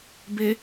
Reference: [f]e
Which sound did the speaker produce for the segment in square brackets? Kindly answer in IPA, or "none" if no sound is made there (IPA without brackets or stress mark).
b